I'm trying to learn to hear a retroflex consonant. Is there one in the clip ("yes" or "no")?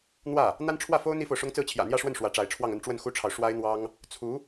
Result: yes